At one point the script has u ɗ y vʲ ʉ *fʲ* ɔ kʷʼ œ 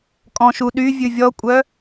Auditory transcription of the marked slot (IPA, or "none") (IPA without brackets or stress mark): vʲ